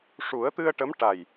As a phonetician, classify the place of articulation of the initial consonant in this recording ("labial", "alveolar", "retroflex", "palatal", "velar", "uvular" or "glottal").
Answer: retroflex